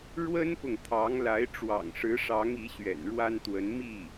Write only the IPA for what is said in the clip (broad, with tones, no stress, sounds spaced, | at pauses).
ɻ w ə˥ n p ʊ˨ ŋ t̪ʰ ɑ˧˥ ŋ l a˧˥ ɪ̯ ʈ͡ʂ w ɑ̰˨˩ ŋ ʂ ɻ̩˧˥ ʂ ɑ˧˥ ŋ i˧˥ ɕ ɥ ɛ̰˨˩ n ɻ w a˥ n t̪ w ə˧˥ n m i˥˩